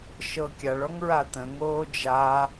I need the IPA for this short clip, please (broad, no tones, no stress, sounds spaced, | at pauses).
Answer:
ʃ ɤ kʲ a ɭ ɔ ŋ ɹ a t̪ ə̃ ŋ oː d͡ʒ a